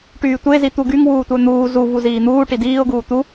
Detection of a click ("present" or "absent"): absent